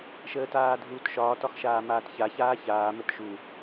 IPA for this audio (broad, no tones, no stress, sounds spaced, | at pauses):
ʃ əː t aː dʱ uː t ʃ ɒː t ɒ x ʃ aː m aː t ç a ç aː ç aː m ə t ʃ u